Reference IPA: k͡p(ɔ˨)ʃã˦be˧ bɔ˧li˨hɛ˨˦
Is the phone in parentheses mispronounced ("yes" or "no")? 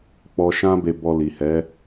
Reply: yes